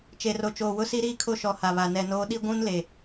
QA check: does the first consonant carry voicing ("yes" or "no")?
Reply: no